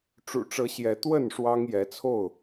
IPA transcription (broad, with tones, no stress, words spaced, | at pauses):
ʈ͡ʂṵ˨˩ʈ͡ʂɤ˨˦ ɕjɛ˨˦ t̪wə˥˨n ʂwɑ˦ŋjɛ˨˦t͡sʰo˥˨ʊ̯